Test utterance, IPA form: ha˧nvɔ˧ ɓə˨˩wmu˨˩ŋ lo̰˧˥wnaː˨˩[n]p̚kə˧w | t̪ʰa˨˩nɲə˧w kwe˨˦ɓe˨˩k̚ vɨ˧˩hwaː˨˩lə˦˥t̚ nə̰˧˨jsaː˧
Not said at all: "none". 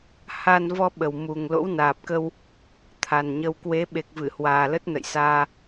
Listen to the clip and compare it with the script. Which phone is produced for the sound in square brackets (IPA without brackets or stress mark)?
none